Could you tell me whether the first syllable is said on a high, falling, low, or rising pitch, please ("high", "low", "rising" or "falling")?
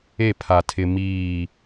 falling